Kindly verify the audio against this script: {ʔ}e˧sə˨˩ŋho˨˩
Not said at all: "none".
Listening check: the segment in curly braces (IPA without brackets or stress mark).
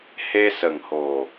h